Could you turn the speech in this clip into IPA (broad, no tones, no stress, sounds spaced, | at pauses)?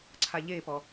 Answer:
ǀʰ a ʎ e p ɔ